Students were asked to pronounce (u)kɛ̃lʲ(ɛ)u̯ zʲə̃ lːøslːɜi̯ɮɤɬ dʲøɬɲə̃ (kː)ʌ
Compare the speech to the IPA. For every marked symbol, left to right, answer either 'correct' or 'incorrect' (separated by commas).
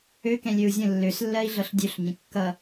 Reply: incorrect, incorrect, correct